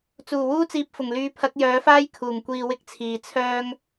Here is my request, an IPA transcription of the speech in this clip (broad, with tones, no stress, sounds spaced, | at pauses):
t͡s uː˨˩ w uː˥ t͡s iː˧ p̚ f ʊ˨˩ ŋ l yː˨˧ pʰ ɐ˨˥ k̚ j œː˨˥ f aː˥ j kʰ uː˨˩ ŋ kʷ iː˧ w ɪ˥ k̚ t͡sʰ iː˨ t͡sʰ œː˥ ŋ